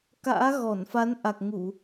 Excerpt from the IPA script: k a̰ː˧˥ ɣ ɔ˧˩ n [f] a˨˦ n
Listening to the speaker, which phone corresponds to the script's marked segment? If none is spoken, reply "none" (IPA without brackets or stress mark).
f